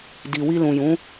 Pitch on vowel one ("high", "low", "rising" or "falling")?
low